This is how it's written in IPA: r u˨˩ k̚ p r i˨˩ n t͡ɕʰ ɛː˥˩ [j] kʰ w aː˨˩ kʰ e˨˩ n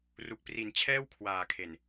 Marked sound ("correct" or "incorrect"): incorrect